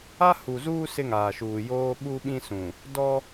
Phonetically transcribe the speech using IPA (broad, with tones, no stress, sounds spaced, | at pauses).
a˦ h u˨ z uː˦ s ɪ˦ ŋ aː˨ ʃ uː˨ j oː˦ ɓ u˦ ɓ ĩ˦ s ũ˨ | d ɔ˦